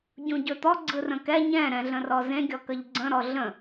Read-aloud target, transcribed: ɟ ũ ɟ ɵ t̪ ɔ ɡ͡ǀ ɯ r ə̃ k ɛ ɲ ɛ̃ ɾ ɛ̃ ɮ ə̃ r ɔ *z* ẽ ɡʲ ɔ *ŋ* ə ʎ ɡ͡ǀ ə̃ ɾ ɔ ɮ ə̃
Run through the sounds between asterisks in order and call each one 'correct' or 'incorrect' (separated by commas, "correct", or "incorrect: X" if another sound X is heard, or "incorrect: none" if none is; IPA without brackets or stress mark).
correct, incorrect: k